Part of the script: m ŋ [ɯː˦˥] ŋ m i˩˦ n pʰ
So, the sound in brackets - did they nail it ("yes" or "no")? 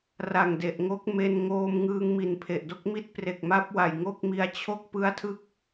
no